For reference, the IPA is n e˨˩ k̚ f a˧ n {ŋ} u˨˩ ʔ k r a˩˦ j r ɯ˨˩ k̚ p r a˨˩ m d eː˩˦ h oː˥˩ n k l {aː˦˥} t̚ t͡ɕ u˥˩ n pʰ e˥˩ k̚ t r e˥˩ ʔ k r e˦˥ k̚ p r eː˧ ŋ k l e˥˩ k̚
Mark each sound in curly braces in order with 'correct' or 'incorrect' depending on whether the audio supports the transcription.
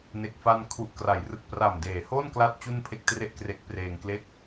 incorrect: kʰ, incorrect: a˦˥

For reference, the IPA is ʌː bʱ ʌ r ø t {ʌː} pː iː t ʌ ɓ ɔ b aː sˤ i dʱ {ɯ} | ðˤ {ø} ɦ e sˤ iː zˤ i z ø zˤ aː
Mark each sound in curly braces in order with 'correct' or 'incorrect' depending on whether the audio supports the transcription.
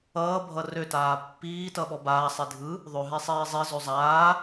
incorrect: aː, correct, correct

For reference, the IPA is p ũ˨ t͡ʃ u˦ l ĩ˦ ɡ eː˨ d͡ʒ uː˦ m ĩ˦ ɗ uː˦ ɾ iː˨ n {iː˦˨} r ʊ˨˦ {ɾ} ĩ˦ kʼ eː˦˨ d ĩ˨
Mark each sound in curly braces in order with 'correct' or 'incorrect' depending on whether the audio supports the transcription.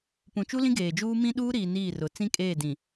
correct, incorrect: t͡s

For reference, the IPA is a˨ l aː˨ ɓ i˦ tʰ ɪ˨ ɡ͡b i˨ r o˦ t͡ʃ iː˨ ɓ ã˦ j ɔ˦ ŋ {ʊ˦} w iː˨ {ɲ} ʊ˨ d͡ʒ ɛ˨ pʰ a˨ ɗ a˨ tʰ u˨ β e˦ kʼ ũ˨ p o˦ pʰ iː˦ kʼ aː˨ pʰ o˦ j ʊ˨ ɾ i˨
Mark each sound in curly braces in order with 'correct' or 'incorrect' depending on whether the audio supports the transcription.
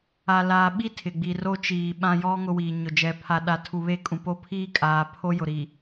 correct, correct

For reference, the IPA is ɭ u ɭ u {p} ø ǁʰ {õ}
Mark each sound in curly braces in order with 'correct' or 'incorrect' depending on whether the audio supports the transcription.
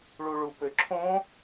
correct, correct

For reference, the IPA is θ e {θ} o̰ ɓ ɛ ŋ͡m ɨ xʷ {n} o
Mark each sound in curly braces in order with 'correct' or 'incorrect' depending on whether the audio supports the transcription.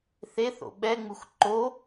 correct, incorrect: ǃ

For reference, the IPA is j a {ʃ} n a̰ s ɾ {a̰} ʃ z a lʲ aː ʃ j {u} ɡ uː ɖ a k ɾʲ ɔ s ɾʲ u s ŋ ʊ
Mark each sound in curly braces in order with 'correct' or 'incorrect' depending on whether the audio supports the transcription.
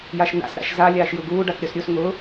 correct, correct, correct

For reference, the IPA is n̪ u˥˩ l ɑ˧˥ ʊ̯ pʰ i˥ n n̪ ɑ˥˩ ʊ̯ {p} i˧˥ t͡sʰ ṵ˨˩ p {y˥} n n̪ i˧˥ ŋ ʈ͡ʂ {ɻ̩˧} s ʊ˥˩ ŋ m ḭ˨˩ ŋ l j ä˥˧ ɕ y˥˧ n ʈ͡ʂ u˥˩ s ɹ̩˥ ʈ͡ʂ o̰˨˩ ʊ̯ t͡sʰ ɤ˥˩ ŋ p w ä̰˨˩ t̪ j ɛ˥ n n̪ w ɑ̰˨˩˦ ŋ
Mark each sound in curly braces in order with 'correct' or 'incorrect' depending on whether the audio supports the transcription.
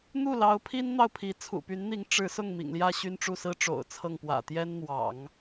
incorrect: pʰ, incorrect: y˧˥, incorrect: ɻ̩˧˥

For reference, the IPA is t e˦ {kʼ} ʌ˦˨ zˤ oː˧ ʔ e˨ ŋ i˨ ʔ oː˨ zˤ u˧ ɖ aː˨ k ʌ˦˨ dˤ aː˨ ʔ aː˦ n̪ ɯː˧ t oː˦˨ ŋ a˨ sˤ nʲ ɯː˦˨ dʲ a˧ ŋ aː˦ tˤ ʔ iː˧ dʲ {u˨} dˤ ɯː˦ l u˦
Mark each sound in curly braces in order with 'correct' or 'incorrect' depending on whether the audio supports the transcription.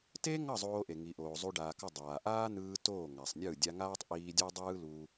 incorrect: ŋ, incorrect: u˦

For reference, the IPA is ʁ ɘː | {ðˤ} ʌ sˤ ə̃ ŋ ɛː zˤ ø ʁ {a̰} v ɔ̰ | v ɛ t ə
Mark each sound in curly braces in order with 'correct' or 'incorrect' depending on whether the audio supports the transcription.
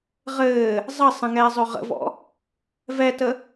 incorrect: zˤ, incorrect: ə̰

